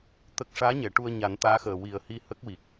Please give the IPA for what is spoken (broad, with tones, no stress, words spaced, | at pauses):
t̪ə˦˥k̚ ʂaː˧˥ɲɛ˨˩˨ ʈu˧ə̯ɲa˨˩˦nt̪aː˧˥xəː˨˩ wi˨˩ə̯hi˧ hə˦˥k̚wi˨˩k̚